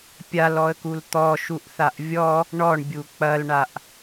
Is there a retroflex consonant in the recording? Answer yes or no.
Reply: yes